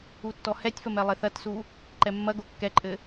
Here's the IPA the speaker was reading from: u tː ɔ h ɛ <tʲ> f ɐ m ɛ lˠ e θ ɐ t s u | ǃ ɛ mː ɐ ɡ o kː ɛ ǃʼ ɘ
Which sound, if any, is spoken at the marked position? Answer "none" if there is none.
tʲ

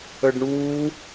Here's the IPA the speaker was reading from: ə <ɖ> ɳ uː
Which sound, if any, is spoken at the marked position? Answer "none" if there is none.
ɖ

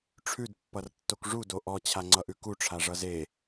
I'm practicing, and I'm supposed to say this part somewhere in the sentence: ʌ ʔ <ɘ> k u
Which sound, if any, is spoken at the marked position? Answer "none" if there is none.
ʉ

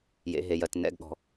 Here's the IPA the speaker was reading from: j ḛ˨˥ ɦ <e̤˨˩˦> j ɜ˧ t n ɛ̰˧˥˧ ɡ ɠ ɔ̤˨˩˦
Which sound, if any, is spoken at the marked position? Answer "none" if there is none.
e˨˩˦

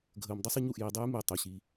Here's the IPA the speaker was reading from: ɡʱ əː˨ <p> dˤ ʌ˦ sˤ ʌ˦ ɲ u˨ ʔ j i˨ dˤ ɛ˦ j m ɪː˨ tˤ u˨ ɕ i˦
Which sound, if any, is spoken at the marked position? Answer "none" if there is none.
m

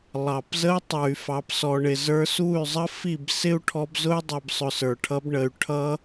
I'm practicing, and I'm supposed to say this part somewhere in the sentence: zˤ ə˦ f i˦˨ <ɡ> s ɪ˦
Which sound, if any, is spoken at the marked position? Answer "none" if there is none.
b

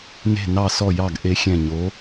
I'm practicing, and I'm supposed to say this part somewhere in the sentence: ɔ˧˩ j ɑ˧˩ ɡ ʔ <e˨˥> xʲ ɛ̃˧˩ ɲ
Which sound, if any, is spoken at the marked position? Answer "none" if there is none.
e˨˥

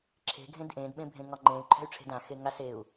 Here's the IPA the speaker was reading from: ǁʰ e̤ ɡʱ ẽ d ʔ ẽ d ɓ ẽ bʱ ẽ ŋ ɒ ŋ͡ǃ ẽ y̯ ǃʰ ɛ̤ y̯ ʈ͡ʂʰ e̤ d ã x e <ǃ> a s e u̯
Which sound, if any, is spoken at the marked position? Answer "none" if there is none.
ŋ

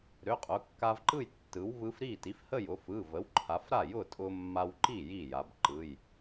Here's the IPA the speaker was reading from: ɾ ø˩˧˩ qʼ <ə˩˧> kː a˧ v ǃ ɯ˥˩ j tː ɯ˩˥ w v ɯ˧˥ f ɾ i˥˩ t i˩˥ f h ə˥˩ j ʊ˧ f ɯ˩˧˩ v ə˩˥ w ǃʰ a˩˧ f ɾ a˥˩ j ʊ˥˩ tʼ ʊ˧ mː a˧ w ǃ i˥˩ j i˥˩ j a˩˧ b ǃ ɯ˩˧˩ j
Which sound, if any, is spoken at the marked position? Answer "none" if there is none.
ʊ˩˧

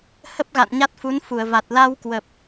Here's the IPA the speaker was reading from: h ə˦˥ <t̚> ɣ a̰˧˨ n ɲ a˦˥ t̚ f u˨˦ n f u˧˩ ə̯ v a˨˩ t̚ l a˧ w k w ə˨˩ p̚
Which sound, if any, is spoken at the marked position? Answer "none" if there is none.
p̚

